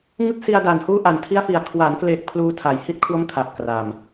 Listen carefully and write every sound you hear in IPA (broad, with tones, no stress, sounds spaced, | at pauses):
ŋ ɯ˦˥ k̚ s i˧ a̯ d a˨˩ n h uː˦˥ ʔ a˨˩ n tʰ i˦˥ a̯ f i˨˩ a̯ kʰ w a˩˦ n k l e˨˩ k̚ pʰ l uː˧ tʰ a˩˦ j h i˦˥ t̚ kʰ w o˦˥ m kʰ a˨˩ p̚ k r a˨˩ m